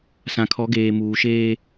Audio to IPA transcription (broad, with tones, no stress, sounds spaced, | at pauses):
s ã˨ kʰ ɔ˨˦ ɡ eː˨ m uː˨ ʃ eː˦